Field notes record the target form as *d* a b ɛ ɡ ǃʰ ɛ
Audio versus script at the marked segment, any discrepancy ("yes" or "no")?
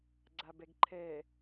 yes